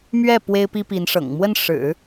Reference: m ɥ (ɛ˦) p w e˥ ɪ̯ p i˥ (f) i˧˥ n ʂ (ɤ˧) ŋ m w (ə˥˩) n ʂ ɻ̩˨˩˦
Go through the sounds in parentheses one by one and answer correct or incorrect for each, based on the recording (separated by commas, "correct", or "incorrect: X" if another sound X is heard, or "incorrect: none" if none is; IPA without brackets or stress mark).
incorrect: ɛ˥˩, incorrect: p, incorrect: ɤ̰˨˩, correct